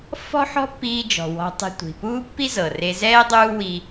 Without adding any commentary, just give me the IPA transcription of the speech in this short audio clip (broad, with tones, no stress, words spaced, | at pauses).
fɔ̤˥ħɔ̤˥pːiː˧ d͡ʒɔ̤˩wɔ̤˧tˤi̤˧ tʷi̤˩puː˥pːi˥zɤ˩ re˧zɛː˥ dˤuː˥wi˧